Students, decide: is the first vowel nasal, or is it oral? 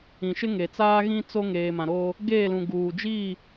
nasal